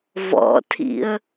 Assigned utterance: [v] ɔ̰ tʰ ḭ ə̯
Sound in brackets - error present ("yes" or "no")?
no